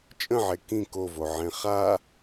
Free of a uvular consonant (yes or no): no